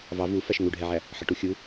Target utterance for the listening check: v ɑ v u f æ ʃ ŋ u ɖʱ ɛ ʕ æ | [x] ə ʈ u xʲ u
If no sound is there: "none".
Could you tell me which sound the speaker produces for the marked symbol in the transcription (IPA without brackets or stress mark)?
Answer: ħ